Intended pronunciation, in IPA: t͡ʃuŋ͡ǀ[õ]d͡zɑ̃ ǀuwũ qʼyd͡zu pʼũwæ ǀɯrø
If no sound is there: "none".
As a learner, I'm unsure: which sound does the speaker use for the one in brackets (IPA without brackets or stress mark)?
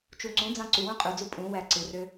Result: ũ